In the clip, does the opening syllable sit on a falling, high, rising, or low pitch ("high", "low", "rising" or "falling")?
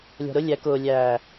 low